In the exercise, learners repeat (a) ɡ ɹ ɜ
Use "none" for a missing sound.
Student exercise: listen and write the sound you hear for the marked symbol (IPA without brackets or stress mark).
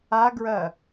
a